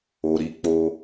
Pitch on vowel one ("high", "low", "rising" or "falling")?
low